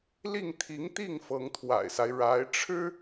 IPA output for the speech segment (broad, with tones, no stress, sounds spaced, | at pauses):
l i˥˩ ŋ t̪ʰ i˧˥ ŋ t̪ i˥˩ ŋ f ɤ˧˥ ŋ t̪ʰ w a̰˨˩ ɪ̯ s a˦ ɪ̯ ɻ a˧˥ ɪ̯ ʈ͡ʂʰ ɻ̩˥